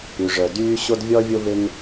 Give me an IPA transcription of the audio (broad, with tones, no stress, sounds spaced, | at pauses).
y˧ ʐ œ˧ d yː˦ ɕ o˦ d vʲ ɔ˦ vʲ o˦ v e˦ ŋ